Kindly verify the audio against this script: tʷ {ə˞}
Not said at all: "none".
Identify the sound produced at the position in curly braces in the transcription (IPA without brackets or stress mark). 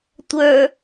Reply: ə˞